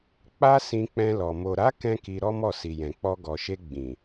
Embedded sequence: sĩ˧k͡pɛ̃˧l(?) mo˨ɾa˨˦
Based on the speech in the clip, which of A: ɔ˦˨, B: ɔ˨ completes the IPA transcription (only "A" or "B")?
B